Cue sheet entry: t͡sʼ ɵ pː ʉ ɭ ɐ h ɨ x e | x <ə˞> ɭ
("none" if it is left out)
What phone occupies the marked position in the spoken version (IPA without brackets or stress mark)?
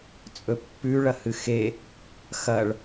ɐ